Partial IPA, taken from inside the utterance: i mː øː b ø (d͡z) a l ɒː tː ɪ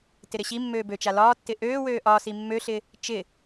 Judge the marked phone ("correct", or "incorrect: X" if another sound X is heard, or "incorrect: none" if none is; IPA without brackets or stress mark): incorrect: t͡ʃ